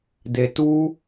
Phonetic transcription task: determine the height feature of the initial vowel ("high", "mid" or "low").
mid